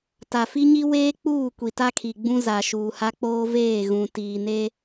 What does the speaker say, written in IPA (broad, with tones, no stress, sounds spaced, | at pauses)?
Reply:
t a˨ f i˦ ɲ i˦ w eː˦ k͡p uː˦˨ kʷ i˨ t a˦ kʰ i˨ ɡ͡b ũ˦ z a˨ ʃ uː˨ h a˦ k͡p oː˦ v eː˦˨ ɣ ũ˨ t iː˨ n e˦